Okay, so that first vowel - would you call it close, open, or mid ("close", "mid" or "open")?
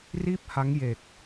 close